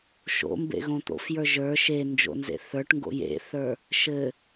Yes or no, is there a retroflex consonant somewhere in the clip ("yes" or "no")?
yes